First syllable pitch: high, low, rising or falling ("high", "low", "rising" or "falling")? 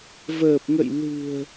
low